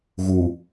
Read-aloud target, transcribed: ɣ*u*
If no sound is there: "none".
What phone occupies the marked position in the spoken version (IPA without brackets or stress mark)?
u